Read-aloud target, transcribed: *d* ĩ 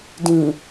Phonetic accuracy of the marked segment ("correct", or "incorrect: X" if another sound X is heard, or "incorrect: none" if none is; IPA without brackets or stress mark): correct